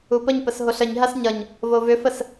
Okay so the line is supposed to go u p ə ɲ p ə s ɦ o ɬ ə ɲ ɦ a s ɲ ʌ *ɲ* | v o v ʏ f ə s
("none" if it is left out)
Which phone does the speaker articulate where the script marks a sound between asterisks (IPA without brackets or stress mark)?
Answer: ɲ